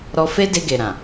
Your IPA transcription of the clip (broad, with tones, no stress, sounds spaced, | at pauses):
ɾ ɔ˧ f e˦ d e˧ ɡ e˨ ɾ ã˨